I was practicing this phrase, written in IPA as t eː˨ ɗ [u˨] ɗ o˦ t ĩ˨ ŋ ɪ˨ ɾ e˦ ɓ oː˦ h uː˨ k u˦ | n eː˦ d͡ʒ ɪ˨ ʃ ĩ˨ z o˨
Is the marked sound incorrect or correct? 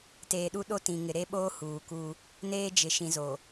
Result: incorrect